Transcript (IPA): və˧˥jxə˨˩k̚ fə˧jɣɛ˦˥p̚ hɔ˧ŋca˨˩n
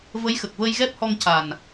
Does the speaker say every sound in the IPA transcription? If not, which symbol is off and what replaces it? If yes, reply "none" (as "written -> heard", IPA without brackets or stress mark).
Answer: f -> v